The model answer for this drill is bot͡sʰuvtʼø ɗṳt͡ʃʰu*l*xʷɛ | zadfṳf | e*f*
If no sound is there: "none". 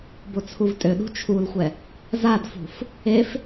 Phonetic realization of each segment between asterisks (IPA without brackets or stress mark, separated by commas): l, f